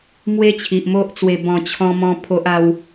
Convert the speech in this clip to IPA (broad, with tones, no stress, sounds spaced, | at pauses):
m w e˦ t͡ɕʰ i˨ ʔ m o˦ ʔ t͡s w e˧ b ɔ̃˧ t͡ɕʰ ɔ̃˦ m ɔ̃˦ pʰ o˦ ʔ a˦ w